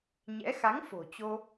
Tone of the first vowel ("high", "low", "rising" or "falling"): rising